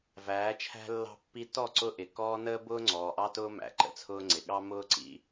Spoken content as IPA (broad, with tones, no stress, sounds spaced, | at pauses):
v æː˨˦ t͡ʃʰ æ̤˦ lː ɑ̤˦ pː i˦ t ɔ˦˨ ǀ ʊ˦ ʔ ɪ˨ k ɔː˦ n əː˦ b ʊː˦ ŋ͡ǀ ɔː˨ ʔ ɑ˦ t ʊː˦ m æ̰˨ ǃ ə̰˦ t͡sʰ ʊː˦ ŋ͡ǀ ɪ˨ ɠ ɑ˦ m ʊː˦ ǀ ḭ˦